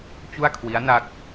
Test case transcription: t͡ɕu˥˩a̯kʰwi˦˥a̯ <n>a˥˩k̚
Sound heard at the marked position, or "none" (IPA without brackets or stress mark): n